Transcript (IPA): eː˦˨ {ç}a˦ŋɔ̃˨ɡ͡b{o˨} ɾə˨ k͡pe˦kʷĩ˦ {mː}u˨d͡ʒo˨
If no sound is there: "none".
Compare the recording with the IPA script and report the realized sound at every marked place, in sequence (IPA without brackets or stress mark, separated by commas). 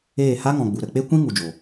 h, u˨, ŋ